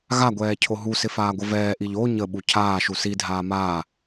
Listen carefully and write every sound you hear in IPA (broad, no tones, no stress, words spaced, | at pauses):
ɣaɡʷɛː cʰoɦusɪ faːɡʷəvɛːʔiʎ o ɲəɓu cʰaːʃu sidʱaː maː